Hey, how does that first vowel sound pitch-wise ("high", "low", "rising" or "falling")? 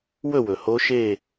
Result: falling